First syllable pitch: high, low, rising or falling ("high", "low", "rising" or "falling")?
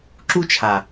high